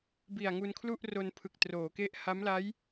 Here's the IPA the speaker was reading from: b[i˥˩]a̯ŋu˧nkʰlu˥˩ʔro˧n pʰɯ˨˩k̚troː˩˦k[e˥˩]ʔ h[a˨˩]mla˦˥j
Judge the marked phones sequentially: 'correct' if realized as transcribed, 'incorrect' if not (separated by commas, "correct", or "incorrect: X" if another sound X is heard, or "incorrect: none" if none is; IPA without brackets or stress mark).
incorrect: i˨˩, incorrect: e˦˥, incorrect: a˦˥